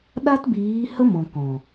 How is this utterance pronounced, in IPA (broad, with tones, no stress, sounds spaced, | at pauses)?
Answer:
ɗ a˦ t b iː˨˦ h ə˦ m ɔ̃˨ k ɔ̃˨